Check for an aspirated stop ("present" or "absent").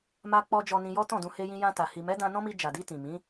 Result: absent